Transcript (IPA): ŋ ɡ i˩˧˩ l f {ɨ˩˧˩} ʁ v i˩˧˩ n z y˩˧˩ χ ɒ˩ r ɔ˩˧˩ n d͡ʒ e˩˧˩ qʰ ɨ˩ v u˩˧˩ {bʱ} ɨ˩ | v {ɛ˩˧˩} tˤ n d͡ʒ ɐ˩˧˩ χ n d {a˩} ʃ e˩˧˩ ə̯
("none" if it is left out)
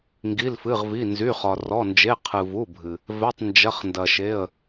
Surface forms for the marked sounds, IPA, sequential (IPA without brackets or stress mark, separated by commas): ɨ˩˧˩, bʱ, ɛ˩˧˩, ɐ˩